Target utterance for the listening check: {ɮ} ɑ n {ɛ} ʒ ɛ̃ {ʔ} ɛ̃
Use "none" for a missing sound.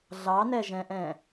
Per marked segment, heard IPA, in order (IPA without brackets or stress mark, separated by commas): ɮ, ɛ, ʔ